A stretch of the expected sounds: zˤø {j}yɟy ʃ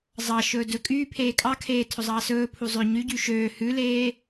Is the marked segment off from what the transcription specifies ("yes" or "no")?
yes